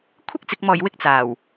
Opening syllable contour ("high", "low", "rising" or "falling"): high